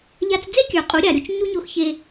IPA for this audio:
ʎ a˧ t͡s d͡z e˥ kʲ ə˞˩ qʼ u˩˧ ɾʲ a˩ ɾʲ u˧ t͡ʃ ɲ u˥ ɲ o˧˥ x ç e˧

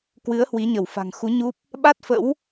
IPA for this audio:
k w ɨ˨˦ ə̯ h w i˨˦ ɲ ə˧˩ w f a̤˨˩ ŋ x u˨˦ ɲ u˦˥ p̚ | ɓ a˦˥ t̚ f ə̰˧˥ w

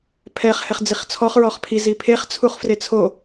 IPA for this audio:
pʰ ɛ χ h ɛ χ d͡z i χ t͡sʰ ɔ χ ɹ ɔ χ pʰ i z i pʰ e χ t͡sʰ u χ f r e t͡sʰ o

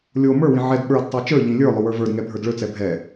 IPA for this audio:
lʲ o m ə˞ w ĩ ʕ ɛ d ɓ ə˞ d tˤ ə˞ t͡ʃ ə˞ ʎ ĩ lʲ ə˞ lˠ ɵ w ə˞ v ə˞ d ŋ ɛ bʱ ə˞ d ɭ ɵ t͡s ɛ bʱ ɛ

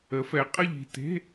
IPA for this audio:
ə˨˥ f ɛ˨˥ qʼ ə˥˧ ʎ i̤˥˧ t e̤˧˥˧

